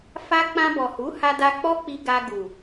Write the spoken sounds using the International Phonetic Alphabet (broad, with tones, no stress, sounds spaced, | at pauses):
f a˦ k͡p ã˧ b ɔ˨ h u˨˦ h a˧ d a˧ k͡p ɔ˦ k͡p i˧ ɡ a˧ ɡ u˨